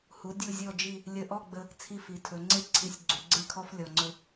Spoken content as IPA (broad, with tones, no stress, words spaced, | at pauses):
hu˩˧ dʲu˧˩zʲɔ˧˩d͡ʒi˧˩ | lʲə˧˩ʔɔ˥˧ɡ͡bə˧ | t͡sʰi˧˩fi˩˧tʰɵ˩˧ŋ͡ǀe˥˧ ǀʰi˧˩sʲɡ͡ǀu˩˧ɡ͡ǀe˥˧kʰɔ˥f lʲɔ˧ŋ͡ǀɵ˥